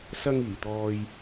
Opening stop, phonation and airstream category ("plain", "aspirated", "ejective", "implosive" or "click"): plain